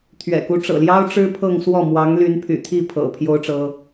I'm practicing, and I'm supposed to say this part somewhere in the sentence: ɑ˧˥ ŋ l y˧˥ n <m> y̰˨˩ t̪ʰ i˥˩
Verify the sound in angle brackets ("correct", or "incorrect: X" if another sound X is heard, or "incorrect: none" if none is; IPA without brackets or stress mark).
incorrect: pʰ